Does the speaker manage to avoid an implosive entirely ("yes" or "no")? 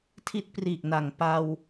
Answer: yes